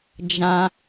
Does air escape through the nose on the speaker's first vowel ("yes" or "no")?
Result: yes